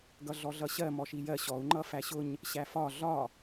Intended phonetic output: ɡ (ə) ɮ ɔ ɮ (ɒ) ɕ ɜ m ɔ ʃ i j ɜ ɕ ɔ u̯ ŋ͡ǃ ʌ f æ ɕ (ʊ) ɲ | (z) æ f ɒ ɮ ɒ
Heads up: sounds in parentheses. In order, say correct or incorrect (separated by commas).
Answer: incorrect, incorrect, correct, incorrect